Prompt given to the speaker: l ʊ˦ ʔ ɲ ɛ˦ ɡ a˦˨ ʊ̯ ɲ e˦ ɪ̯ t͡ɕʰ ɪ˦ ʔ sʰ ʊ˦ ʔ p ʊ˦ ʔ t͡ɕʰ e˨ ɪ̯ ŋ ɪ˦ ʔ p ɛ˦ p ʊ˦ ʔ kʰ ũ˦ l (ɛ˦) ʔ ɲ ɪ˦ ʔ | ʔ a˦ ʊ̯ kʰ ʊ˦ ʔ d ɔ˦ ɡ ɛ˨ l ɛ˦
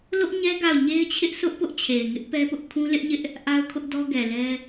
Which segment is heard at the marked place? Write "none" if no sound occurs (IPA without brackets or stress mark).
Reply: ɪ˦